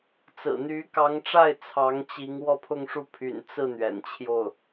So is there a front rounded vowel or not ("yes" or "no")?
yes